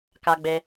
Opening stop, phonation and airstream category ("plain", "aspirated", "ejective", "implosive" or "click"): plain